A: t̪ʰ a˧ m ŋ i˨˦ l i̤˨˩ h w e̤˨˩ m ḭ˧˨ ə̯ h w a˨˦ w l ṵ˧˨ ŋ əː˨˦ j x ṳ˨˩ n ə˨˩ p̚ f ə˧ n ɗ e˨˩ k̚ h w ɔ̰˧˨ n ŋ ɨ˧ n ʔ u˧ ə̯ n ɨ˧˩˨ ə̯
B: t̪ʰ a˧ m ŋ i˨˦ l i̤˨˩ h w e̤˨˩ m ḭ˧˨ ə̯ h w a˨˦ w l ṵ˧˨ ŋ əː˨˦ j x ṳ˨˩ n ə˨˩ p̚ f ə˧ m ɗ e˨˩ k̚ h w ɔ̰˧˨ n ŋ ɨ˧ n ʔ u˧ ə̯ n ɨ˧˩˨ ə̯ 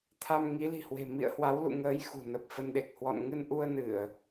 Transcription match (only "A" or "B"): A